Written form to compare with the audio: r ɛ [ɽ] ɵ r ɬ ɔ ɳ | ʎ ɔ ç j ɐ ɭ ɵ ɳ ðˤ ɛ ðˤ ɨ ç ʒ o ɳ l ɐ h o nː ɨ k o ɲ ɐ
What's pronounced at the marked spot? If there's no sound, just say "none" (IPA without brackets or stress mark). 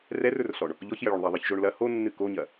r